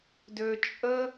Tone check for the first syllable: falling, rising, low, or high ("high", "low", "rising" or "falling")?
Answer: low